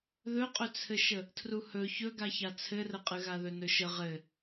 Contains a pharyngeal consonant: no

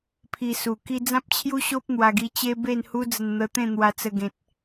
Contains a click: no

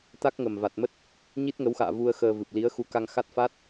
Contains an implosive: no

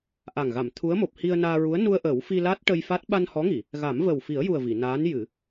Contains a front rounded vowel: no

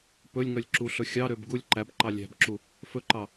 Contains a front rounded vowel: yes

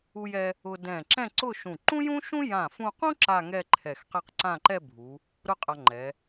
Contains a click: yes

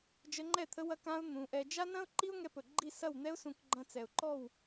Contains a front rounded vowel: no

